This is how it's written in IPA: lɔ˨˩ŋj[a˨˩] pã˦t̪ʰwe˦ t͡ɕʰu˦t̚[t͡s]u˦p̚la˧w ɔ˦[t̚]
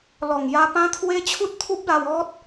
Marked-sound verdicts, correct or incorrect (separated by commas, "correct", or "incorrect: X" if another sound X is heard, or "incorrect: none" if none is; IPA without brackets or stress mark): incorrect: a˧, incorrect: t̪ʰ, correct